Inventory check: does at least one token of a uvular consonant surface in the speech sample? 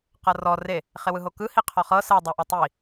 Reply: yes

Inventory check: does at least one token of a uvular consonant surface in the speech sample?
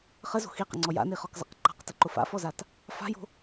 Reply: yes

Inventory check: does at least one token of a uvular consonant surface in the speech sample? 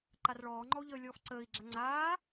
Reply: no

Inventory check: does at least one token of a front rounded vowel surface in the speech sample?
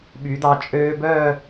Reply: yes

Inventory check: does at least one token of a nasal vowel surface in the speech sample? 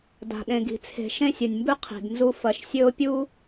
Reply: yes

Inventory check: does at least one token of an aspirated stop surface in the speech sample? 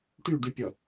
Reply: no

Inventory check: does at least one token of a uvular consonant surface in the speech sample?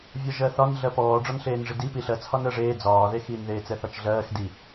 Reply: no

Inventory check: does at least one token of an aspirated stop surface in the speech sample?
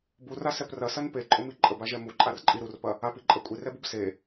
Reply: no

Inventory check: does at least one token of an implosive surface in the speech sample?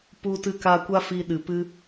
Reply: yes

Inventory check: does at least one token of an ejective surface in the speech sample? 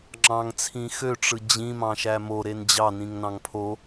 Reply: no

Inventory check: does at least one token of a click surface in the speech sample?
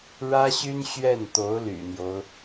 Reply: no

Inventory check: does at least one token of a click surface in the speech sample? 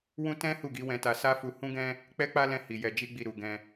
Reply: no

